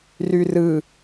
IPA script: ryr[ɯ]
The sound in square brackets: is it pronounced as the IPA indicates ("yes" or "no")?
yes